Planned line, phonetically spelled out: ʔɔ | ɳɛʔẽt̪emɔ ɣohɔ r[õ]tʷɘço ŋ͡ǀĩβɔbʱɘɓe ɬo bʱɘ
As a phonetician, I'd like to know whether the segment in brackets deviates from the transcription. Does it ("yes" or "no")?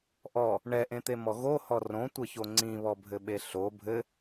no